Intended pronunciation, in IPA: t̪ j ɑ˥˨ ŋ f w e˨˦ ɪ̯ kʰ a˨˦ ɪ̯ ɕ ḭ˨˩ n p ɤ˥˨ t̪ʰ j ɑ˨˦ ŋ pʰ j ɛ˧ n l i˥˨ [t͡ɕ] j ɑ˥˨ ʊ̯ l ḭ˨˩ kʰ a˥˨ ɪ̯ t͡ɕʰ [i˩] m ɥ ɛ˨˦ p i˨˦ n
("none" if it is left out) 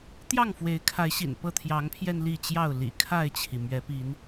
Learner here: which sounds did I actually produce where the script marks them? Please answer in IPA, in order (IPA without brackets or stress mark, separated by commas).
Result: t͡ɕ, i˩